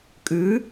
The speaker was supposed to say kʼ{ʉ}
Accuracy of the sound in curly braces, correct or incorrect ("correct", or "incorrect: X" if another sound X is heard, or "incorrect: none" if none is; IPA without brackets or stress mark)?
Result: correct